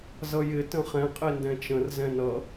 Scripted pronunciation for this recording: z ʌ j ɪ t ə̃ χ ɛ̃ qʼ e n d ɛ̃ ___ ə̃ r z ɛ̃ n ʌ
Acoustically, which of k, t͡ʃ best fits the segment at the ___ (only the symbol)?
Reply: t͡ʃ